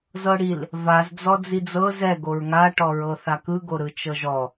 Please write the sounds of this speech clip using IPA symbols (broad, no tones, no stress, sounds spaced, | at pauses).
z ɤ ɽ i l | v a z d͡z ɔ d͡z i d͡z ɤ z ɛ ɡ o ɹ ŋ a ʈ ɔ ɹ ɤ θ a k ɯ ɡ o ɾ ɯ t͡ʃ ɤ ʒ ɔ